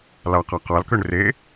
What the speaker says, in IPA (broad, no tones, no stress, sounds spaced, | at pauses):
l ɑ q ɑ q ɑ l k ø ɳ r e